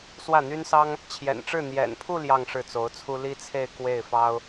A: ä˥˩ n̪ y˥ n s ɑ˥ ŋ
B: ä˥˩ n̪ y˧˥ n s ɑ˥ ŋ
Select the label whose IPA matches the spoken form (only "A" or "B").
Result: A